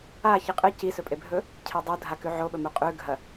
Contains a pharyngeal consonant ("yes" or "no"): yes